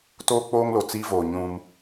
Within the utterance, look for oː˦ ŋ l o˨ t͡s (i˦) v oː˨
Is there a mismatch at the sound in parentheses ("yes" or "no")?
no